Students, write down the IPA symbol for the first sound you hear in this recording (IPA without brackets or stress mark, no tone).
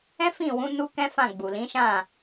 ɛ̃